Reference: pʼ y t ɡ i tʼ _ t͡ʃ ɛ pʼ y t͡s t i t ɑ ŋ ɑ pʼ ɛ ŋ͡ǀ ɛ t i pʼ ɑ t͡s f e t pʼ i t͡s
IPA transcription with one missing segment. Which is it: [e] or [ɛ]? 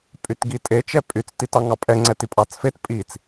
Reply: e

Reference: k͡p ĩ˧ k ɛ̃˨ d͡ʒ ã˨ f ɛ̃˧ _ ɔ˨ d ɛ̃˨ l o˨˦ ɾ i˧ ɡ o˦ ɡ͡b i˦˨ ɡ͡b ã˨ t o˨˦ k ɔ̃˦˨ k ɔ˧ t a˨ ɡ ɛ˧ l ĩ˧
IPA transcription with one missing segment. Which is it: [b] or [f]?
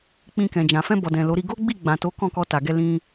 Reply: b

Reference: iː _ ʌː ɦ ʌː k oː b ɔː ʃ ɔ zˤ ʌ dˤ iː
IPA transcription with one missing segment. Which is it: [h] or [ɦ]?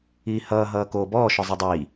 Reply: h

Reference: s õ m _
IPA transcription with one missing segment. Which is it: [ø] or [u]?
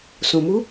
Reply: u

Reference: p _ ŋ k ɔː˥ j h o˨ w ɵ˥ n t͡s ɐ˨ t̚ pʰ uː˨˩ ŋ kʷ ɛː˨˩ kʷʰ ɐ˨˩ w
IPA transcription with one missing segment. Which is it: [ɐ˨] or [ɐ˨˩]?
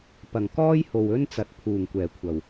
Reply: ɐ˨˩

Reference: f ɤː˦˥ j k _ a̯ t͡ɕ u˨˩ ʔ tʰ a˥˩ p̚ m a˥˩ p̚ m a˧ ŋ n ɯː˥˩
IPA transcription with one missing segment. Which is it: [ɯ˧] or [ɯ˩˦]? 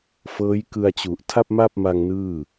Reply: ɯ˧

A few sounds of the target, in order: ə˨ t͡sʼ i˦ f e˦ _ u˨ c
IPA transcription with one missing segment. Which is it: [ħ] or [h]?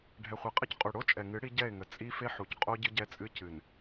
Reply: ħ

